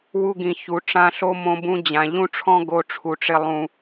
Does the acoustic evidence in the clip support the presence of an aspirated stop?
yes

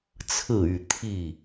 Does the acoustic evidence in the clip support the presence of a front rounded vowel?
yes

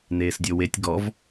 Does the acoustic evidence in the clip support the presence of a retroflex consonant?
no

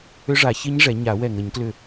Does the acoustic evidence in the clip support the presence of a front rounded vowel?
yes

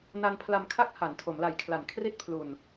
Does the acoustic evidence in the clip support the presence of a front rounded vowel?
no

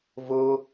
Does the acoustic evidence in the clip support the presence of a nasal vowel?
no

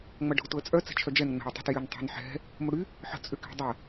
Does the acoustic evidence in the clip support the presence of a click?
no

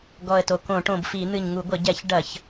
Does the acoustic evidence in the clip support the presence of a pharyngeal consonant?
no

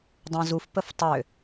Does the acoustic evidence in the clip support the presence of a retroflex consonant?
no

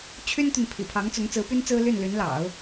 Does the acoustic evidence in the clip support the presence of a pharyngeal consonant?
no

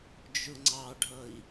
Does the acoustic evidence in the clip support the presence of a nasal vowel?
no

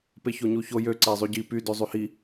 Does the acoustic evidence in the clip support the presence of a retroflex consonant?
no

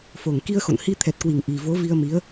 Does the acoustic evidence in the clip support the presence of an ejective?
no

